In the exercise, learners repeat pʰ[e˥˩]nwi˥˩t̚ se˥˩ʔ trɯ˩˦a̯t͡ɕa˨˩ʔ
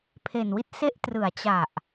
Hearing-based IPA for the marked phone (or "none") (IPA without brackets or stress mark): e˨˩